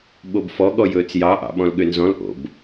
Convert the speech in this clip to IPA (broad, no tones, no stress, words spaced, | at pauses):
ɓobfɔ ɠɔjɵːt͡sjɑ ʔɑ̰ɓɔ̃lɠønzɔ̃l ʔo̰b